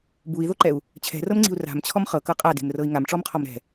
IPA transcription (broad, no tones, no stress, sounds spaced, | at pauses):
b u i̯ ð o ǃ ɛ u̯ | t͡ɕʰ ɛ̤ r ɤ m ŋ͡ǀ i̤ u̯ r a̤ m t͡ɕʰ ɔ m χ ɤ k ɤ qʼ a d e̤ m r ɤ i̯ ŋ a m ʈ͡ʂ ɔ m qʰ ɔ m ɾ ɛ̤